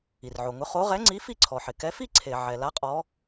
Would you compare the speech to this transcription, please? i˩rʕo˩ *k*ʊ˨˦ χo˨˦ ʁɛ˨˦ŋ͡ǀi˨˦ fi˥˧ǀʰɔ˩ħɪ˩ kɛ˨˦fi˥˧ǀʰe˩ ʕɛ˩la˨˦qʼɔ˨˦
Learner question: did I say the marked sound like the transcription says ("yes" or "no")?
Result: no